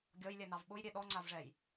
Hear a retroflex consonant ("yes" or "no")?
yes